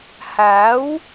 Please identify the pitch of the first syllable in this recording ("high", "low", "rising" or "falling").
rising